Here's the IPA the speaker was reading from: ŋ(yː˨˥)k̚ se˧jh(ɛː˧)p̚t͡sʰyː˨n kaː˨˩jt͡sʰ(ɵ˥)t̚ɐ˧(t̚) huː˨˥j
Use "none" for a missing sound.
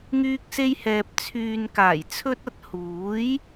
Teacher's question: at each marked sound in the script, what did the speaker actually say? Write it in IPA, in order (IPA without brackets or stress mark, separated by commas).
yː˧, ɛː˨, ɵ˧, t̚